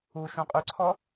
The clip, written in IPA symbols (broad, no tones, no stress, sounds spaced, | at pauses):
u ʃ ũ qʼ y ǀʰ ɔ